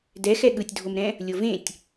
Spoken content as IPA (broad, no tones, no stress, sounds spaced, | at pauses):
d ɛ x ɛ ɠ ɯ tʲ dʱ o m ɾ ɛ̃ | lʲ o v ẽ tʲ